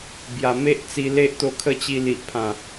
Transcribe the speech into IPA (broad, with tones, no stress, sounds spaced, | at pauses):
b j a˨˩ m e˦ ʔ t͡s i˧ l e˦ ʔ t̪ o˧ kʰ ə˥˧ t͡ɕ i˧ l i˨ ʔ pʰ ã˨˩